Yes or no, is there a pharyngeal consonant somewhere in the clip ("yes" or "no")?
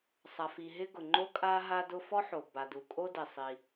yes